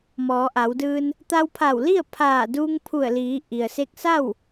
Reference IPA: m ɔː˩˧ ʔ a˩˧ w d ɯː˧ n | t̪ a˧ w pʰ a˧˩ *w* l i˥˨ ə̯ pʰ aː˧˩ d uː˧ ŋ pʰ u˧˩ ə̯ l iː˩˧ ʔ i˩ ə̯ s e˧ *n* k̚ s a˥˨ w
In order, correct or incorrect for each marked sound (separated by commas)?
correct, incorrect